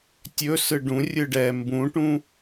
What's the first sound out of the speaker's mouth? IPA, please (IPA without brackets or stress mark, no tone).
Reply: tʲ